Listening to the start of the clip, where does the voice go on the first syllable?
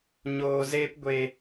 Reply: low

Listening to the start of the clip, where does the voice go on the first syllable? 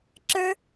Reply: high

